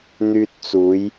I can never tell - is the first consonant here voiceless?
no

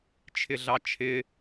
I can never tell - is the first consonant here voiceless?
yes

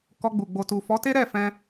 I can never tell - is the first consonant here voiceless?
yes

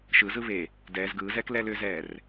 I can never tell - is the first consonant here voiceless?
yes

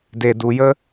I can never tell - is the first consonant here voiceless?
no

